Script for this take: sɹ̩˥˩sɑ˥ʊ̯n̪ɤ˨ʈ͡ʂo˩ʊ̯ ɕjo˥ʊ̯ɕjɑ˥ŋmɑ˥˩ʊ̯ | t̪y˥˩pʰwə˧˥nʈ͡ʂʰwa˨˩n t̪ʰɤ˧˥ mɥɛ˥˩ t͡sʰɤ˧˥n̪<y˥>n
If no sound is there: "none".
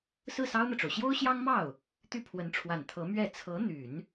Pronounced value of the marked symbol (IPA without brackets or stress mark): y˨˩˦